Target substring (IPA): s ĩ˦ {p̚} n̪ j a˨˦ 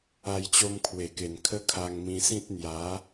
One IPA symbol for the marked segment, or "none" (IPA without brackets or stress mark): t̚